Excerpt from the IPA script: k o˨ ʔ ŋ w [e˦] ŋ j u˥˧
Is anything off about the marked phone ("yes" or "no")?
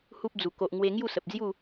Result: yes